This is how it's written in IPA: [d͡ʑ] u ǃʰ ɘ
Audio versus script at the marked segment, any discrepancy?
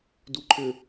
yes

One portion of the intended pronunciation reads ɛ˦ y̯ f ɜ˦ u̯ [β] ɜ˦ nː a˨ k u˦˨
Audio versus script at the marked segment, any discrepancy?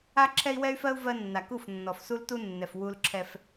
yes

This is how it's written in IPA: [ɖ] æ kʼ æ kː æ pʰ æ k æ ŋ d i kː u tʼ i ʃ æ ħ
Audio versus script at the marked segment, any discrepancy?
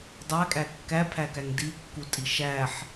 yes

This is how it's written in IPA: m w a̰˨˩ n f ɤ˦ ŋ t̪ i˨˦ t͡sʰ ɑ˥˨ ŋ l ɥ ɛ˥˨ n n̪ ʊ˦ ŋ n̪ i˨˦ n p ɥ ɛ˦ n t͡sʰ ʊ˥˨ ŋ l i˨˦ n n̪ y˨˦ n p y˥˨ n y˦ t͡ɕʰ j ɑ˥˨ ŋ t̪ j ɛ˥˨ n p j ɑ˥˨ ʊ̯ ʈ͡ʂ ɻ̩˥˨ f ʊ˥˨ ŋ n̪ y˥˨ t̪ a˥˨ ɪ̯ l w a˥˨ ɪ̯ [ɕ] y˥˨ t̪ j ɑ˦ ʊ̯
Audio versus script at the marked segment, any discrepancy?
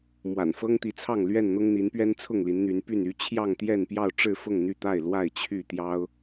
yes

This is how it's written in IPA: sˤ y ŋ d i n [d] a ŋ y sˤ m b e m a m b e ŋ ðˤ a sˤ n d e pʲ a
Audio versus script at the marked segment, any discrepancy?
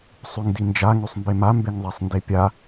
yes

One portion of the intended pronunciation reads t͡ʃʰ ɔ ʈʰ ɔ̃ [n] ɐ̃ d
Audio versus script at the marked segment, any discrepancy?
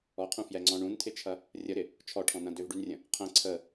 no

